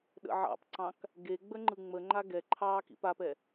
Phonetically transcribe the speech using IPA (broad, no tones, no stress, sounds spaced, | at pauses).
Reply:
ɗ ə̰ ʕ ɑ̰ p ǀ ɑ̃ k | ɡ e ɡ͡b ə ŋ͡ǃ ɯ ŋ͡m ə ŋ͡ǃ a ɡ ɛ ǃʰ ɑː k ḭ p a p ɛ